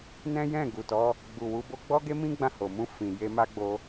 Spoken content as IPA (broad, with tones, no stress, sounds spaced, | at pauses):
n ɛ̃˦ j ɛ̃˦˨ ɡ u˨ t ɔ˨˦ | ɡ͡b u˨ w u˨˦ b o˧ ɡ͡b ɔ˦ ɡ e˦ m ĩ˦ ɡ͡b ã˦˨ h o˨ m ũ˧ f ĩ˨ j e˧ m a˦ ɡ͡b o˧